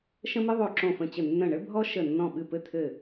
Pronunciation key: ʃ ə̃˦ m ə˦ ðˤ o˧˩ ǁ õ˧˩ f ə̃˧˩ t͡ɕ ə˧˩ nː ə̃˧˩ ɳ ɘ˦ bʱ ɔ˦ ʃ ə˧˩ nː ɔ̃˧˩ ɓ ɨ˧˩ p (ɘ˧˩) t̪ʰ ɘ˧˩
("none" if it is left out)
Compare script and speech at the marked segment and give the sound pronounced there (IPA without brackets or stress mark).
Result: ɘ˧˩